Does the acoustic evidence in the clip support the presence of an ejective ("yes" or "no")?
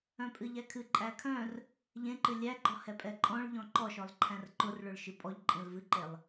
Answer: yes